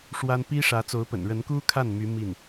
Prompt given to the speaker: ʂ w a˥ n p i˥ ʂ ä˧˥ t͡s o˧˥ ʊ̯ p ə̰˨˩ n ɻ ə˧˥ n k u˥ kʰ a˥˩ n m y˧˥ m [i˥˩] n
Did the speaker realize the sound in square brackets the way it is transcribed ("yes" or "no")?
yes